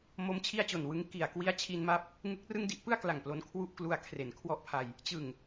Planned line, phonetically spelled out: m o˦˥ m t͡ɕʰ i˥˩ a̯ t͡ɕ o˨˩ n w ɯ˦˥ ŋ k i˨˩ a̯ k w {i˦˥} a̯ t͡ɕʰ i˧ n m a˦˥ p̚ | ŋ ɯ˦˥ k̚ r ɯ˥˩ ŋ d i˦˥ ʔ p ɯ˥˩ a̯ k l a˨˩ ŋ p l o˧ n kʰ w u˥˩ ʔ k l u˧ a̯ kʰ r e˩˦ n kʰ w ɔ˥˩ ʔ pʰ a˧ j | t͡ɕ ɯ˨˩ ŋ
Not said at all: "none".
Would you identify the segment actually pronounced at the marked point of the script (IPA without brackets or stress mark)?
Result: i˦˥